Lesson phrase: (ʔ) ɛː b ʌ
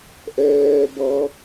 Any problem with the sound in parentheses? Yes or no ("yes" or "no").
no